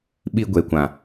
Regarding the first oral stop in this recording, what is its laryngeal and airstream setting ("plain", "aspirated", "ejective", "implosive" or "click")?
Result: implosive